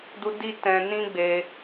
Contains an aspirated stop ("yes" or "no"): no